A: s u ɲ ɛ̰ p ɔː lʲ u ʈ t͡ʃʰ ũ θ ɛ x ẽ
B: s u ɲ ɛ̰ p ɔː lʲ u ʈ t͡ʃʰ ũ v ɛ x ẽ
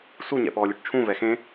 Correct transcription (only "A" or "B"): B